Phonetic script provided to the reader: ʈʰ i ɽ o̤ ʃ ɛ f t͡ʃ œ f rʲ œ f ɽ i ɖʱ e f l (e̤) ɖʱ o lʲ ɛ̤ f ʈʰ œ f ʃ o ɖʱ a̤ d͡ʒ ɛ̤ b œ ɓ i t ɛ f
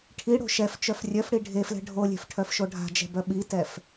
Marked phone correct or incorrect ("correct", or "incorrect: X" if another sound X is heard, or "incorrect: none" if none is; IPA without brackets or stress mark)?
incorrect: ɛ̤